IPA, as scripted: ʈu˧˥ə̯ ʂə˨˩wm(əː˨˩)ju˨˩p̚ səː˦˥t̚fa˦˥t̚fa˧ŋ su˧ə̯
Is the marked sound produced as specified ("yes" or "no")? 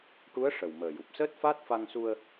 yes